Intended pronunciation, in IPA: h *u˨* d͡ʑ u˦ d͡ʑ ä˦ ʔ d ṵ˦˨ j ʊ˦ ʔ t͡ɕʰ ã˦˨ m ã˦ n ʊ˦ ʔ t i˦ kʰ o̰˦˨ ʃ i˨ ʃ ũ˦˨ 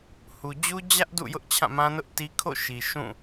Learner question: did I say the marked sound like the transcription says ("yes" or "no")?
yes